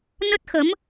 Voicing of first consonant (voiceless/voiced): voiced